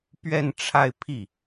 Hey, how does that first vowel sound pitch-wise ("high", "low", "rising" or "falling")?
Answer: falling